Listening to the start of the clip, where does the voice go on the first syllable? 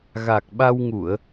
low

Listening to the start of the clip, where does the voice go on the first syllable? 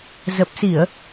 low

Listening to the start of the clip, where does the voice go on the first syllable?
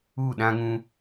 falling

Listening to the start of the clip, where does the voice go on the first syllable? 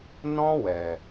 high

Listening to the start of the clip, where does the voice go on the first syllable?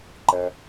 low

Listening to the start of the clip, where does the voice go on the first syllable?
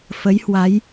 rising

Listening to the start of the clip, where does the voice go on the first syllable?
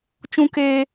high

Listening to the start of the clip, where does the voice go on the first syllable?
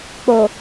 low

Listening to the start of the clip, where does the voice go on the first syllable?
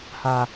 high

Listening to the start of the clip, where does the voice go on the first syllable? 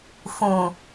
low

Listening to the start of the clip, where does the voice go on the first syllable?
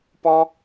high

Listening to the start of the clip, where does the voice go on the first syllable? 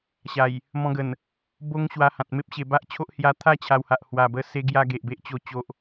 low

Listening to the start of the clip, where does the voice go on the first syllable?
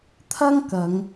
high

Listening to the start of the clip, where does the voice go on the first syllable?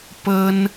high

